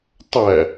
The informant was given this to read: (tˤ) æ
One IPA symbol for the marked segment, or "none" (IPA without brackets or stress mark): tˤ